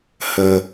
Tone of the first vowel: low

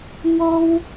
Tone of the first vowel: high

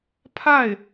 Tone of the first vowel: falling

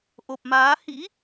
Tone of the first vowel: low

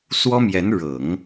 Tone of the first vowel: high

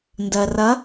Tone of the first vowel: low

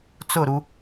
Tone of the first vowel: falling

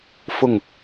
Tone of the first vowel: falling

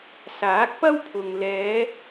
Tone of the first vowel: rising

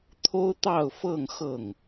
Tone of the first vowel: high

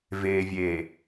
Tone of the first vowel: low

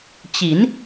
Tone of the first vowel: rising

